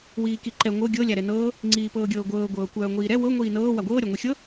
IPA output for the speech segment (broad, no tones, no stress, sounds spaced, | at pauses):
w iː k i ǃ ɛ ŋʷ ɤ ɡʲ ɤ lʲ a ɾ ɛ n ɤː | ŋ͡ǀ iː p ɤː ɡʲ ɤː ɡʷ ɤː ɡʷ ɤː kʷ œː ŋʷ iː ɾ ɛ w ɤ ŋʷ iː n ɤː w a ɡʷ ɤː ɾʲ a ŋʷ ɛ xʲ ɤ